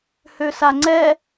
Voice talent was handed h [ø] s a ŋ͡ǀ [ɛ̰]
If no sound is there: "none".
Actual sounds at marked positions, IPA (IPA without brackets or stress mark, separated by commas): ø, ɛ